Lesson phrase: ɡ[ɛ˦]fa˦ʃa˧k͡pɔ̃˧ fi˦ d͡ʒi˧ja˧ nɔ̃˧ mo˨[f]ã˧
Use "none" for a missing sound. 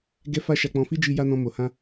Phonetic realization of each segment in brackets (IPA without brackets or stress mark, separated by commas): ɛ˦, h